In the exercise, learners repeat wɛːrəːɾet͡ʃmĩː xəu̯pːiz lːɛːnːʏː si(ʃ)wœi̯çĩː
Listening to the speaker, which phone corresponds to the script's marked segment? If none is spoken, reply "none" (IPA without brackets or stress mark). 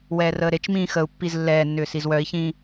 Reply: z